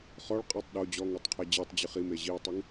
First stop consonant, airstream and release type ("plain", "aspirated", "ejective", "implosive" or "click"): ejective